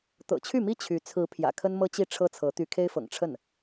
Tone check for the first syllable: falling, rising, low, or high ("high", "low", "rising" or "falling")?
low